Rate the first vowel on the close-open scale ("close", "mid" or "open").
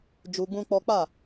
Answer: close